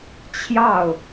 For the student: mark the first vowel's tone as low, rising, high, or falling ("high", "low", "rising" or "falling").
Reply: falling